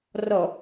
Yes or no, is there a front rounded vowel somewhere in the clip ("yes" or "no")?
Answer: no